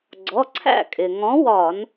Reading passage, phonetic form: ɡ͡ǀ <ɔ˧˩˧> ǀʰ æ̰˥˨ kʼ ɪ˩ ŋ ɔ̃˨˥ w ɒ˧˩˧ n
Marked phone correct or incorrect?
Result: incorrect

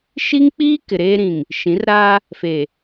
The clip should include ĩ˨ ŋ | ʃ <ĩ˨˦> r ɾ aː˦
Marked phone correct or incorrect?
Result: correct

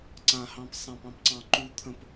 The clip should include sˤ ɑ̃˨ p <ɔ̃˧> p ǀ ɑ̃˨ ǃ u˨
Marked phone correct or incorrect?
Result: incorrect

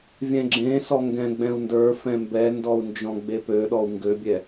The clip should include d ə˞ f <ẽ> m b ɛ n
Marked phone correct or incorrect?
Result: incorrect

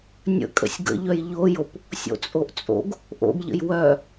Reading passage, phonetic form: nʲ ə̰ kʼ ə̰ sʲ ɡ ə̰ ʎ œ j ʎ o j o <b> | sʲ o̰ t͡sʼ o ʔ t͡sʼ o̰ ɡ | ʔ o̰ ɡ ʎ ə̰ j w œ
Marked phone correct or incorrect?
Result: incorrect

